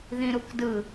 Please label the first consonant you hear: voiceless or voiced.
voiced